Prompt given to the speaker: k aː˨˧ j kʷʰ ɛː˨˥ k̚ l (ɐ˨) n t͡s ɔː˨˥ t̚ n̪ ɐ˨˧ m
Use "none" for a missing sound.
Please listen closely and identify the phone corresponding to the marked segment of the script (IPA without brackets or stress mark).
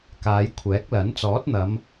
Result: ɐ˨˥